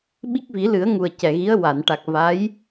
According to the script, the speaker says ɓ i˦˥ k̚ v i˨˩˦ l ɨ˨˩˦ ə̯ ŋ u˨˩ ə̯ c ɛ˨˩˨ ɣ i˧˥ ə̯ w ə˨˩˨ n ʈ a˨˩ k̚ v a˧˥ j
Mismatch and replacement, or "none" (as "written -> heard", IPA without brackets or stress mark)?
ə˨˩˨ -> a˨˩˨